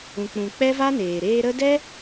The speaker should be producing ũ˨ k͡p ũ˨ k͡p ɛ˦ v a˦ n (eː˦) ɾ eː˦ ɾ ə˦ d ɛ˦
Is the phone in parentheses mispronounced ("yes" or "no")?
yes